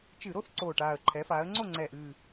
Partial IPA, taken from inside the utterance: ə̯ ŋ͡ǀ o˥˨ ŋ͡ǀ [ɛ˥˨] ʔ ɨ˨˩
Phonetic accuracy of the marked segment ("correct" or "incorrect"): incorrect